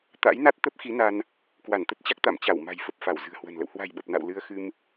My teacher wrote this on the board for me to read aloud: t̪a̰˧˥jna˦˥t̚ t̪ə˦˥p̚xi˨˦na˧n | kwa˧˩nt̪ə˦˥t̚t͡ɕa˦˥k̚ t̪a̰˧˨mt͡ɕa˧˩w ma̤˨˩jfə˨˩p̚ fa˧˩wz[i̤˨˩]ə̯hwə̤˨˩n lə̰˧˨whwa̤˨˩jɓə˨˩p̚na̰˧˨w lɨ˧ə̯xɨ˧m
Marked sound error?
yes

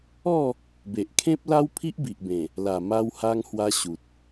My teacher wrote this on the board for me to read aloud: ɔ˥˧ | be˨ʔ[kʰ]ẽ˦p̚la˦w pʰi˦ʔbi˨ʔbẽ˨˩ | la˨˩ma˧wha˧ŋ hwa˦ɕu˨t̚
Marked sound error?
no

